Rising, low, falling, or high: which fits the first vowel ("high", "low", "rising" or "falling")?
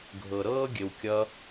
low